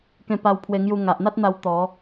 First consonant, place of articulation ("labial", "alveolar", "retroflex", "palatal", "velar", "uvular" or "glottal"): velar